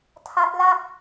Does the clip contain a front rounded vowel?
no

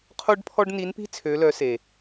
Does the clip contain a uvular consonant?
yes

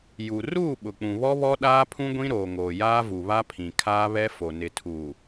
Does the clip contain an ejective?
no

